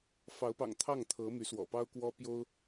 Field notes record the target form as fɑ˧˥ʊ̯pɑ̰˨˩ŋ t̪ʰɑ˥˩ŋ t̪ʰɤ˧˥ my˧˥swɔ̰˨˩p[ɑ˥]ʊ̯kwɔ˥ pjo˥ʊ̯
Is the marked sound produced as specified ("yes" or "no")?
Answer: yes